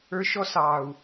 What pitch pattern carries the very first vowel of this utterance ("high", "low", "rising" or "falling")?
high